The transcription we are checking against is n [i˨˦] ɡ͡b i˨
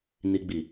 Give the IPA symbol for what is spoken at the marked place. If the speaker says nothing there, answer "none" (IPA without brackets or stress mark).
i˨